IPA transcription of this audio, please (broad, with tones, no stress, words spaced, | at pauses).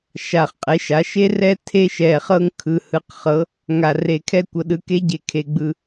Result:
ʃa˨˩χqʼe˩˥ʃa˩˥ ʃe˦rɛ˦ tʰe˦ʃɛ˨˩ χɤ˦ŋkʰɯ˨˩hɯ˩˥qχɤ˩˥ | ŋa˨˩re˨˩kʰɛ˦kʷɤ˩˥ ɗɯ˩˥ke˦ɟe˨˩ kʰe˨˩ɡ͡bɯ˨˩